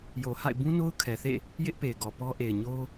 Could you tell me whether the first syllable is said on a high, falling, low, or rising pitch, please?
low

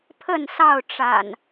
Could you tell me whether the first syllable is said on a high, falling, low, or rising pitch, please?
falling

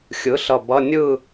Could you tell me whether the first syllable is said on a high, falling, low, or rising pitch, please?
rising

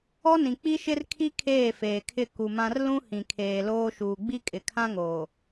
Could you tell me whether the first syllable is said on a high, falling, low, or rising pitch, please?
high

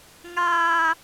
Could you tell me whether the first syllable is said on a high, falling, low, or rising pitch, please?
high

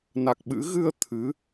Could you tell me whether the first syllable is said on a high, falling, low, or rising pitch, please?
low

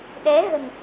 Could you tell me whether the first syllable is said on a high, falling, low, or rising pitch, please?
rising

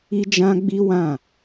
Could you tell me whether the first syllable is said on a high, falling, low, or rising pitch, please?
high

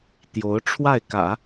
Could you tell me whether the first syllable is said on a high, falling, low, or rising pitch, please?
rising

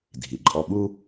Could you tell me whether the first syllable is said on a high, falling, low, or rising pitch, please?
low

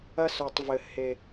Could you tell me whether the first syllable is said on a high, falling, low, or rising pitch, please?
high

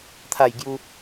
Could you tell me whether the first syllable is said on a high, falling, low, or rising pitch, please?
falling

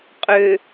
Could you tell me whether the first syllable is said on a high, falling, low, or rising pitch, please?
low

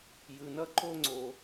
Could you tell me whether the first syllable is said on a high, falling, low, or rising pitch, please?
low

